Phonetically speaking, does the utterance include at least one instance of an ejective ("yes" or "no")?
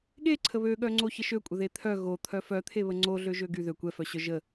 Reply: yes